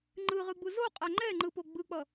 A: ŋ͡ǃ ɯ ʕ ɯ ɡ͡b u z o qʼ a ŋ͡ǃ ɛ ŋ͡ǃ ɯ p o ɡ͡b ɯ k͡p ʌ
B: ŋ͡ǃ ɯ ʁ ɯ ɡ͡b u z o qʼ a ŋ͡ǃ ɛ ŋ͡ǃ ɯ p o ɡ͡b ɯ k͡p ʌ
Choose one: B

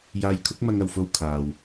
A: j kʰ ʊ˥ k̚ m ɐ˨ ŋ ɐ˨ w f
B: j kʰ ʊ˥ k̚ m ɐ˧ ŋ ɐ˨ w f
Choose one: B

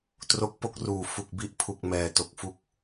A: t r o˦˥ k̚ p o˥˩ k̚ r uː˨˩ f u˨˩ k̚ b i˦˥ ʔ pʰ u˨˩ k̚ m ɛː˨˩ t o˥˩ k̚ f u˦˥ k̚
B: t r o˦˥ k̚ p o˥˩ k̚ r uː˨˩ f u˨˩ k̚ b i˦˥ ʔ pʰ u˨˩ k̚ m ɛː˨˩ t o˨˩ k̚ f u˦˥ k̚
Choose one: B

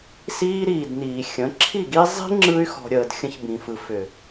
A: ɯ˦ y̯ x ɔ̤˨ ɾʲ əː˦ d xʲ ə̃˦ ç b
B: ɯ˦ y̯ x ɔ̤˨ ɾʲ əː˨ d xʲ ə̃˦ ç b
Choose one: B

